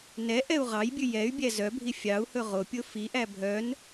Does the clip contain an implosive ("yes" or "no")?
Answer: no